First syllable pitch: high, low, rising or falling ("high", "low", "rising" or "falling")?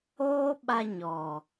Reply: high